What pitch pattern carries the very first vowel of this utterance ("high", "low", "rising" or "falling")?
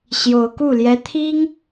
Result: rising